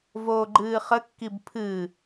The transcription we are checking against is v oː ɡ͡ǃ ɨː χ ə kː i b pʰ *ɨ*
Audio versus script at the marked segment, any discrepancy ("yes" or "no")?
no